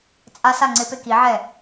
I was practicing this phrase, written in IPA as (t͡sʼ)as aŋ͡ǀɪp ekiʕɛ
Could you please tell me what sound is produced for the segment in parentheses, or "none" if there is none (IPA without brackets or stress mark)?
t͡sʼ